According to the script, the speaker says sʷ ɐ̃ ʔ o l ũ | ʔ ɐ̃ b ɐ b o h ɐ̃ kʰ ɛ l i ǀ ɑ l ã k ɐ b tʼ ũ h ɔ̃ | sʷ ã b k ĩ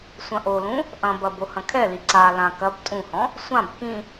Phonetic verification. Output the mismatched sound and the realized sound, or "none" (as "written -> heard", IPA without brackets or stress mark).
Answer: ɑ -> a